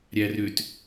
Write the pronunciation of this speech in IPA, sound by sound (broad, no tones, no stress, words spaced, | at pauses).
ɾʲærʏt